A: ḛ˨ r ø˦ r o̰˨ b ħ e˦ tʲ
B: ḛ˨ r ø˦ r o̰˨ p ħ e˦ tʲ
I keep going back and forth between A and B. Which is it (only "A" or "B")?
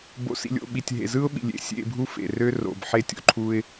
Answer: A